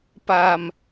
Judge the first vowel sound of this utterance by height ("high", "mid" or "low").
low